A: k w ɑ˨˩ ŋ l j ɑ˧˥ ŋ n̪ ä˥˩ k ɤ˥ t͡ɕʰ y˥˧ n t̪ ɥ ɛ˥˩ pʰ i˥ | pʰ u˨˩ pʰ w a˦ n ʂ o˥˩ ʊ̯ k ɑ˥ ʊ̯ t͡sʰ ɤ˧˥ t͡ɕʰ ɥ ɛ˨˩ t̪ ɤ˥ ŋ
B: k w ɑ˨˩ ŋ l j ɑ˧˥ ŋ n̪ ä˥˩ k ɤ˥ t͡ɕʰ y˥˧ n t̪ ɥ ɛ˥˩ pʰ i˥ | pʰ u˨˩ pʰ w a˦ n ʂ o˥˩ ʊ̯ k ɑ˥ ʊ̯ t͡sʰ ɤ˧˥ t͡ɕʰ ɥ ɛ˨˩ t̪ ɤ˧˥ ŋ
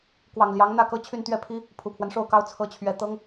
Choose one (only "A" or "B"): A